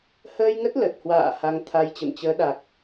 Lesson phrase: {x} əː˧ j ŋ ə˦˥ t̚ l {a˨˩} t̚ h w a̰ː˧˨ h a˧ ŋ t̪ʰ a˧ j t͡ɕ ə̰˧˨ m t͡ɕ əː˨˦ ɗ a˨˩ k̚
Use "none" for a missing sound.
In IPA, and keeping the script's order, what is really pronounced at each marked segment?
h, ə˨˩

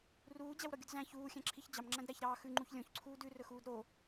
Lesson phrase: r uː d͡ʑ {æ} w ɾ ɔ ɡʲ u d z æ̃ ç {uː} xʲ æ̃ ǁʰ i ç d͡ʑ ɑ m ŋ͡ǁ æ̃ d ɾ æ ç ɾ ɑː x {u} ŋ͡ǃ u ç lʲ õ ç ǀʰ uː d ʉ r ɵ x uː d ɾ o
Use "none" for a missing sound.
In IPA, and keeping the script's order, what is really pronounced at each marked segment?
æ, uː, ʉ

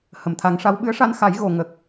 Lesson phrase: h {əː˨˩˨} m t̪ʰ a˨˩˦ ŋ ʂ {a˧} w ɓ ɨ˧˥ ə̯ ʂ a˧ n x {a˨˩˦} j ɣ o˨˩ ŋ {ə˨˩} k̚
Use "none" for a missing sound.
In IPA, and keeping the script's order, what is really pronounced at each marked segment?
ə˨˩˨, a˧˥, a˨˩˦, ə˨˩

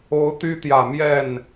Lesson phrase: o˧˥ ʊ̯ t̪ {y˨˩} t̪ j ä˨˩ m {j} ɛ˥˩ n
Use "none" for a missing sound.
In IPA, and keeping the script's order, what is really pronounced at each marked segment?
y˥, j

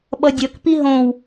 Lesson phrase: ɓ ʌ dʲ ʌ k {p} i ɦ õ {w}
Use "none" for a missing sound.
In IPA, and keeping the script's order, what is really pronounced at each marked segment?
p, w

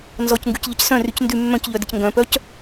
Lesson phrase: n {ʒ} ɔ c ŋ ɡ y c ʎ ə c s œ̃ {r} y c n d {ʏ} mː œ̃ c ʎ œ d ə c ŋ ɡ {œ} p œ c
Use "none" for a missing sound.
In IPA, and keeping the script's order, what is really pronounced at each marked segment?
z, r, y, œ̃

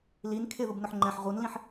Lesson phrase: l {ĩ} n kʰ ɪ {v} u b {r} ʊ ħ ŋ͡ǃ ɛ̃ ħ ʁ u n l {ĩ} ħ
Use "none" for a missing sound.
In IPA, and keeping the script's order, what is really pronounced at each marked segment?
i, ð, n, ĩ

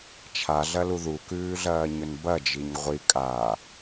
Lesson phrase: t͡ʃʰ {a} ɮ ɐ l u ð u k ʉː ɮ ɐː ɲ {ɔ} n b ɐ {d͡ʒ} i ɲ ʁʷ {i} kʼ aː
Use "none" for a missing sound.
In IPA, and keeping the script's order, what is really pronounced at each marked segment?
a, ɵ, d͡ʒ, i

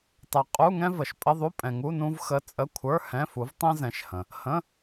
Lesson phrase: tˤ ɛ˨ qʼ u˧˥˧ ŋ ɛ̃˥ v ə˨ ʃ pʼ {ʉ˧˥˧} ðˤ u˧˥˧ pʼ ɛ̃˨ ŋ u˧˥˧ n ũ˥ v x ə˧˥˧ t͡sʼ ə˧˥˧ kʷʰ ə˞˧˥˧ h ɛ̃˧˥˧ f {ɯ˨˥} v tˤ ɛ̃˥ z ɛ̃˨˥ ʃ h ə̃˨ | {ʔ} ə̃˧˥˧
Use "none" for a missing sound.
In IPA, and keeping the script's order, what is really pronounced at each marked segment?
ə˧˥˧, u˨˥, h

